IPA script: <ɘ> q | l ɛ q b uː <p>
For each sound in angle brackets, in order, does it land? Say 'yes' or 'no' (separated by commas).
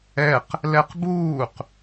no, no